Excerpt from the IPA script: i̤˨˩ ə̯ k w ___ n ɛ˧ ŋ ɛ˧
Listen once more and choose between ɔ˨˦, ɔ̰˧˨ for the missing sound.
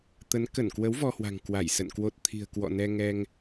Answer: ɔ̰˧˨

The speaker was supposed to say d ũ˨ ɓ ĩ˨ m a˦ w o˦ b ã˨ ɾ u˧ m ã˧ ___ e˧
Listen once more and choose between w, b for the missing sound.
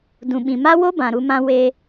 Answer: w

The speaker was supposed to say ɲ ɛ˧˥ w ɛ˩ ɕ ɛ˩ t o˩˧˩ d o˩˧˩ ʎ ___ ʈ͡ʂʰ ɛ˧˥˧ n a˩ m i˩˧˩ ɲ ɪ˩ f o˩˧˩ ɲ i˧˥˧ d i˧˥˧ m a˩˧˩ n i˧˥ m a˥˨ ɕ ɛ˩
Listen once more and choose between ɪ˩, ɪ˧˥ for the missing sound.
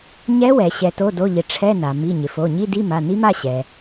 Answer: ɪ˩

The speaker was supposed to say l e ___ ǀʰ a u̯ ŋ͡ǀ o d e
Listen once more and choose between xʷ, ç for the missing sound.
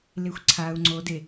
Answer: xʷ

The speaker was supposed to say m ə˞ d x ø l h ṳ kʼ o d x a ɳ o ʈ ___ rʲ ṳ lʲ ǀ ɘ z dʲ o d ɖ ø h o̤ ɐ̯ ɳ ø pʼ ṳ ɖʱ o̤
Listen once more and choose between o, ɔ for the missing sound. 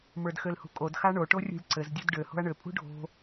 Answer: o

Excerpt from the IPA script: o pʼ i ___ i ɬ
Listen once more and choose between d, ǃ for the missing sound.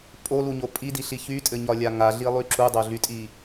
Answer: d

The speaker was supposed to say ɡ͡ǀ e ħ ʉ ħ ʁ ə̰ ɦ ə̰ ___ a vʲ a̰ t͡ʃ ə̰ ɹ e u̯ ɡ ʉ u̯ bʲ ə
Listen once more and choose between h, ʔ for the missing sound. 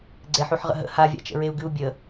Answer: h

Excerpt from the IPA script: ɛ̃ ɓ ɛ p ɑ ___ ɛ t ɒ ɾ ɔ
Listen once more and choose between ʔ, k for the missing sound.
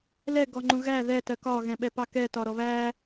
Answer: k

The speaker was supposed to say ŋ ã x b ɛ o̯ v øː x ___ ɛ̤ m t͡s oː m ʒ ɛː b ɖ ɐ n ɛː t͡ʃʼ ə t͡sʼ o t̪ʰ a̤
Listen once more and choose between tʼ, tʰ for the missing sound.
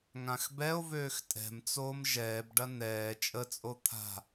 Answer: tʼ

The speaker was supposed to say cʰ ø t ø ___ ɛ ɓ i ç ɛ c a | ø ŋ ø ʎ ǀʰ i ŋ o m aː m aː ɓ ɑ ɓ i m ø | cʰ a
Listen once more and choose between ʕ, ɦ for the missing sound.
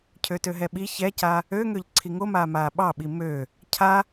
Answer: ɦ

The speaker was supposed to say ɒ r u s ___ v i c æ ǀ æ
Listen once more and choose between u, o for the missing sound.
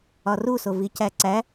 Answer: o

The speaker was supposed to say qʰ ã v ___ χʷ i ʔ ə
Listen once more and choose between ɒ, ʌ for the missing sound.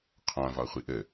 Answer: ɒ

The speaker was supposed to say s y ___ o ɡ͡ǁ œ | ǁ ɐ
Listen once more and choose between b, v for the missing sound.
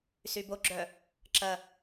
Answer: b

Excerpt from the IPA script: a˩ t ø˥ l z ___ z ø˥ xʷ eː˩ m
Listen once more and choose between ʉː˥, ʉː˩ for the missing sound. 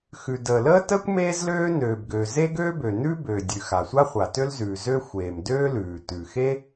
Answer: ʉː˩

